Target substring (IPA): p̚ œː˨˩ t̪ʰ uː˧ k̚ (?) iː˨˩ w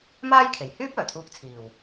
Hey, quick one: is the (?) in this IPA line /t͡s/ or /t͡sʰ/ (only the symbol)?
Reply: t͡sʰ